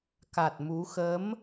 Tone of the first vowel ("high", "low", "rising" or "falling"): low